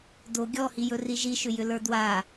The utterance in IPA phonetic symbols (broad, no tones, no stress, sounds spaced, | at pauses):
d o ɡʲ ɔ h i j ɵ r i ʒ i ʃ ʏ j ʏ l ə˞ d w a